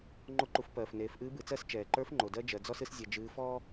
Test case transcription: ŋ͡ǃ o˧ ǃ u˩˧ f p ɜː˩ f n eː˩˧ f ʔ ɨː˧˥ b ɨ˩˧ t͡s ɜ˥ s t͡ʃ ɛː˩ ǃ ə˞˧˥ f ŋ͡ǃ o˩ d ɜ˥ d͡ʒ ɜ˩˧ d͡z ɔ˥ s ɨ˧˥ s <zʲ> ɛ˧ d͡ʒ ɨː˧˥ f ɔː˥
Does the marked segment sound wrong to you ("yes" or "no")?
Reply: no